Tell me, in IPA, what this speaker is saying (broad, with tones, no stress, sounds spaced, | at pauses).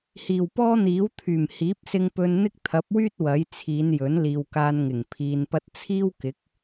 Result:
h iː˨˩ w p ɔː˥ n̪ iː˨˥ w t̪ʰ yː˨˩ m h iː˨˥ p̚ s ɪ˧ ŋ p ɵ˧ n n̪ ɪ˥ k̚ t̪ʰ ɐ˨˥ p̚ w yː˥ t̚ w ɐ˨˥ j t͡sʰ iː˨˧ n j ɵ˨˥ n l iː˨ w k aː˧ n ŋ ɪ˨˩ ŋ pʰ iː˧ n p ɐ˥ t̚ t͡sʰ iː˥ w k ɪ˨˥ k̚